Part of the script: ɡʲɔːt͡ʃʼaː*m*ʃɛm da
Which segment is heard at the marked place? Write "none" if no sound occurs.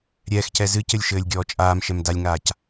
m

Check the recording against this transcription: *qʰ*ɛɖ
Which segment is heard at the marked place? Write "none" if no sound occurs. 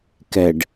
k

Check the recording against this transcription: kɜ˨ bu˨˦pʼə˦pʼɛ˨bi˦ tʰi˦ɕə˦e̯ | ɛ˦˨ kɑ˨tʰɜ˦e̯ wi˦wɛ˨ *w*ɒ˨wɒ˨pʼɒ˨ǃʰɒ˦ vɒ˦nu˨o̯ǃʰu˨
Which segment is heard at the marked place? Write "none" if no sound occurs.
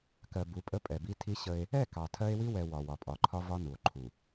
w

